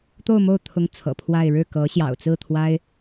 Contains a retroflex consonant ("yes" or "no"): yes